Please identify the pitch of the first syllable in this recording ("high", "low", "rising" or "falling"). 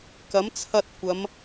rising